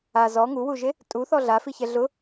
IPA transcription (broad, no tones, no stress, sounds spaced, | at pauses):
a z ɔ ŋ u w u ʒ e | tʼ u θ ɔ ɮ a f i ç ɛ ɮ ʊ